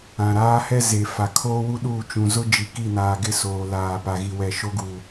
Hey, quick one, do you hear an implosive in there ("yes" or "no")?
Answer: yes